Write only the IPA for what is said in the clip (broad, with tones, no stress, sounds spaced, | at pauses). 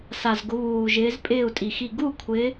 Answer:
s a˨˩ z ɡ ʊ˨˦ β uː˨˩ ʒ ɪː˨˦ z pʼ ɪː˥˩ u̯ tʼ i˨˩ x i˥˩ ɡ u˥˩ kʷʰ ɪ˨˦